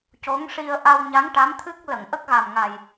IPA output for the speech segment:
c o˧˥ ŋ ʂ i˧ ə̯ ʔ a˧ w ɲ a˧˥ ŋ ʈ a˧˥ m t̪ʰ ɨ˦˥ k̚ l ə˨˩˨ ŋ ʔ ə˦˥ k̚ ɣ a˨˩ m ŋ a˨˩ j

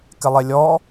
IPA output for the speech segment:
k ɪ lˠ e lʲ ɔ

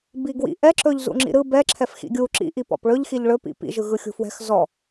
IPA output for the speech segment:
b i ɡ w ḭ ʔ ɛ ǁ ɵ ʎ z ṵ ŋ͡ǁ ḭ ɾ ɯ b ɛ ǁʰ ɛ f x ḭ ɡʲ u ǁ ḭ ʔ i p ɔ̰ p ɭ ɵ ʎ x i ʎ ɭ ɵ p ḭ p ḭ ʒ ɯ ɣ ɯ xʲ ṳ f w ɛ̤ x z ɔ

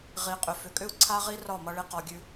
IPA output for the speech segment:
ʁ i˨ qʼ ʏ˨ f ʏ˨ kʼ ʏ˦ u̯ ǀʰ a˦ ʁ i˦ r ɒ˦˨ m ʌ˦ ɭ i˦ q ɒ˦ ɡʲ ʉ˦

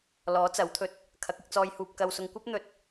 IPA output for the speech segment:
l ɔː˨˥ t͡s ɐ˨˥ w t̪ʰ ɵ˨ t̚ | kʰ ɐ˨˥ k̚ ɪ˧ k̚ t͡s ɔː˧ j h uː˧ p̚ k ɐ˨ w s ʊ˨ ŋ kʷ ɐ˥ p̚ n̪ ɵ˧ t̚

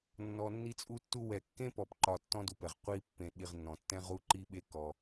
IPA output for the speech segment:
nː ɔ˨ nː i˦ t͡sʼ u˦ tː u˦ w ɛ˨ kː ẽ˥ p ɔ˨ p ǃ ɒ˨ tː ɔ̃˦ d u˨ p ɛ˩ ʁ qʷ i˦ pː ẽ˨ ɗ i˨ ʁ nː ɔ̃˩ tː ɛ̃˦ ʁ u˦ ǃ i˥ ɓ e˦ k ɔ˨

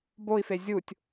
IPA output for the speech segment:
b o i̯ f e zʲ u tʲ

